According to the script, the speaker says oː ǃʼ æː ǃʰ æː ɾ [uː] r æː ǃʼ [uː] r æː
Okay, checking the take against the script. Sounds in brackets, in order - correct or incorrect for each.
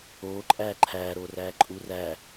incorrect: oː, correct

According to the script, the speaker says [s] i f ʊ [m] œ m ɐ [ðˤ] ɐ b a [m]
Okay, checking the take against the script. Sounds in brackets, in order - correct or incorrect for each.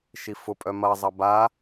incorrect: ʃ, incorrect: pʼ, incorrect: zˤ, incorrect: none

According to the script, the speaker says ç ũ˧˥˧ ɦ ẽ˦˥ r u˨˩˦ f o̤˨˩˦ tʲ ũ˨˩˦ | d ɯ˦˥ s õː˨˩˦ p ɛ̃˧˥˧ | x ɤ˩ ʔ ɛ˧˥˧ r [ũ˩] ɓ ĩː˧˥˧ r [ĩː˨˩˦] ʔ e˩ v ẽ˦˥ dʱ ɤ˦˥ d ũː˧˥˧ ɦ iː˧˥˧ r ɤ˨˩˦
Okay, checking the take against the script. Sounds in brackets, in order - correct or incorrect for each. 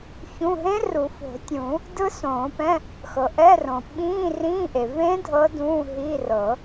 incorrect: õ˩, incorrect: ĩː˧˥˧

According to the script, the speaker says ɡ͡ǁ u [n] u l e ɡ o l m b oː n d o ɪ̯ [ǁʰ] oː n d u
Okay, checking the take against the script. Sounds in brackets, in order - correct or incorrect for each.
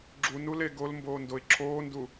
correct, correct

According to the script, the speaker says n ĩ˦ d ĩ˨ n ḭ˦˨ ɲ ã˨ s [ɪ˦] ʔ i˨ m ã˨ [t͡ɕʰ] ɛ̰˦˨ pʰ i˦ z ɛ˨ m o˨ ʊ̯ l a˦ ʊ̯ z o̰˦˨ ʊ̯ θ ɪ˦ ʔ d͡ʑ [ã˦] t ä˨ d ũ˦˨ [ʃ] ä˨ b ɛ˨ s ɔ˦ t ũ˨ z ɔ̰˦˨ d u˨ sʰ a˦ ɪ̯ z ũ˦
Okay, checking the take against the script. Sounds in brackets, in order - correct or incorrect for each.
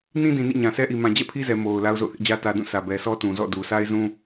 incorrect: ɛ˦, incorrect: d͡ʑ, incorrect: ä˦, incorrect: s

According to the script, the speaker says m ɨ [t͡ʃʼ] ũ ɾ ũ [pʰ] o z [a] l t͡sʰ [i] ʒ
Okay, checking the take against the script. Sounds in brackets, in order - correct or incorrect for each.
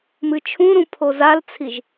incorrect: t͡ʃʰ, correct, correct, correct

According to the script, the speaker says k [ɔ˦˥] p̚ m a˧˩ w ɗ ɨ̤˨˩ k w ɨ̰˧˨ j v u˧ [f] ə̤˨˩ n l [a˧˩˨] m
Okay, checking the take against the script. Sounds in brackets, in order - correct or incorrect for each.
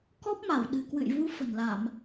correct, correct, correct

